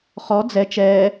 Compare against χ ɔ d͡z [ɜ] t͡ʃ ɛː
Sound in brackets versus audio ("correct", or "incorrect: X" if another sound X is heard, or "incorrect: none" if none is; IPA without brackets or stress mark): incorrect: ɛ